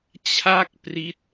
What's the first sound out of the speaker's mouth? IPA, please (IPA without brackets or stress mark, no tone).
t͡ɕʰ